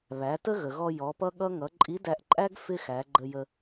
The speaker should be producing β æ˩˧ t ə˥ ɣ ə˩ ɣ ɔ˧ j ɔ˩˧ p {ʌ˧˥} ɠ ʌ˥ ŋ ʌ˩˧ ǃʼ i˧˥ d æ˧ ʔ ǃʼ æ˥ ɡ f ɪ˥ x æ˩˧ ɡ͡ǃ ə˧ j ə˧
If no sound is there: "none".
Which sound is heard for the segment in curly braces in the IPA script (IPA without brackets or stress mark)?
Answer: ʌ˥